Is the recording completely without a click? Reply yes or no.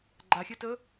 no